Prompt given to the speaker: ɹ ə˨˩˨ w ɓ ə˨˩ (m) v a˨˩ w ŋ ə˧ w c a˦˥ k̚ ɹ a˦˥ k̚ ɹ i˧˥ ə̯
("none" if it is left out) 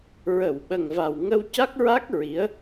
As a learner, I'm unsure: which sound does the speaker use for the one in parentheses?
ŋ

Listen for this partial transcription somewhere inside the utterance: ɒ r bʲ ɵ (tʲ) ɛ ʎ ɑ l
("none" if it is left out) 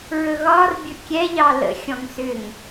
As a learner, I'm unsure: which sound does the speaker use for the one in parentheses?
kʲ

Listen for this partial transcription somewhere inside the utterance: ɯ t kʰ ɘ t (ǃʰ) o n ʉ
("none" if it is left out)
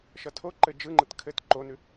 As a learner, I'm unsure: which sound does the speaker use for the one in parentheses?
ǃ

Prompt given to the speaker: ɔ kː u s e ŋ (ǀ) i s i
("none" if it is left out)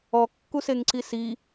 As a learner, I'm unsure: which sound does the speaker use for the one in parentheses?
ǀ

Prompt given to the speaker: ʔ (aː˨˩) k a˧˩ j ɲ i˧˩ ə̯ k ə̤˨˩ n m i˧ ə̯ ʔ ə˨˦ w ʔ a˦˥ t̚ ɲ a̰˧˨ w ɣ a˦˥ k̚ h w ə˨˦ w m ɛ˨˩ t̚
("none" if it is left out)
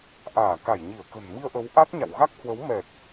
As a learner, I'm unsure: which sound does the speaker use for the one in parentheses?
aː˧˩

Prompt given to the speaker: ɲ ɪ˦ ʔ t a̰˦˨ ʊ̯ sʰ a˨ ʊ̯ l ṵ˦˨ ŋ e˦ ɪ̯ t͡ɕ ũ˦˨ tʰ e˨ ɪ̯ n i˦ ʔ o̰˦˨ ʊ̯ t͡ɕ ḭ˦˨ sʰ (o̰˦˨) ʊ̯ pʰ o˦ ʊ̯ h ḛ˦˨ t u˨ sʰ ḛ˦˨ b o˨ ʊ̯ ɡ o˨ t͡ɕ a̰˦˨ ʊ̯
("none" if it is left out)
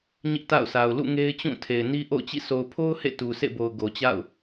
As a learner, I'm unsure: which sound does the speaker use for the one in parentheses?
o˨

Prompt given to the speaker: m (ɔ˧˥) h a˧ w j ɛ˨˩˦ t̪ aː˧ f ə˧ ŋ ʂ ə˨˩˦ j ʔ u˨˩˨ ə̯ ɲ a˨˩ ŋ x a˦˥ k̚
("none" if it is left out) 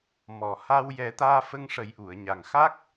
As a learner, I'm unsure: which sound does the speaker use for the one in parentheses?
ɔ˨˩˨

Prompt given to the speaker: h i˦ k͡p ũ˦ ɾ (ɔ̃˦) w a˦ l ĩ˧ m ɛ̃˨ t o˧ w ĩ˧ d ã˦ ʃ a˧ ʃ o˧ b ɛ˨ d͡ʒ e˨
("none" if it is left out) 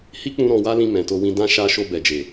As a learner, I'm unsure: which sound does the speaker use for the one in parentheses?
ɔ̃˧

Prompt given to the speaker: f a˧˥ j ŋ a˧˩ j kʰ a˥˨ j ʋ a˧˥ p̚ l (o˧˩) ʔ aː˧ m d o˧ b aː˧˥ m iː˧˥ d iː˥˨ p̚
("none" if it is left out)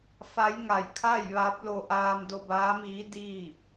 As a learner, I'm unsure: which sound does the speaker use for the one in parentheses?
o˧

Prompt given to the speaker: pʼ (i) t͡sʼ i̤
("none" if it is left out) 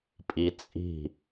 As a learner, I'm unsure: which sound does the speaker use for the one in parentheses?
i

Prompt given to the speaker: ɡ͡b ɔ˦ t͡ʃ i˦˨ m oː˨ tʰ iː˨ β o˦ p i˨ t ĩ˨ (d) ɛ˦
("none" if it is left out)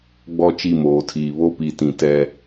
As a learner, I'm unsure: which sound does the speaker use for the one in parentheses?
t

